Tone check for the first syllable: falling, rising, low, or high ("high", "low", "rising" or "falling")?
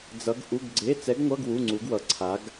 rising